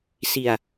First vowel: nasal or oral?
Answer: oral